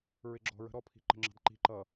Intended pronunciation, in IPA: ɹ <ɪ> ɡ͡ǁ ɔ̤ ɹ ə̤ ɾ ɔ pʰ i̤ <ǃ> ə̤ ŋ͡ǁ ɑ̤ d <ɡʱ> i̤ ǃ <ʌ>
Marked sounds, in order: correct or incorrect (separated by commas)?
correct, correct, incorrect, correct